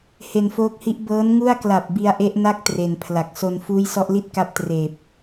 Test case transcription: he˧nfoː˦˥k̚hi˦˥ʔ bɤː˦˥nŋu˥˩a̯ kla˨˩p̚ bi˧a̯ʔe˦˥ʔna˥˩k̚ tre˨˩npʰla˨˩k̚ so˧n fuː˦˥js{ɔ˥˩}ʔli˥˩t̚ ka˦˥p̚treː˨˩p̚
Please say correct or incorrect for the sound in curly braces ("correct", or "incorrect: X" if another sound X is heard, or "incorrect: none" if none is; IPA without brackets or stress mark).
incorrect: ɔ˦˥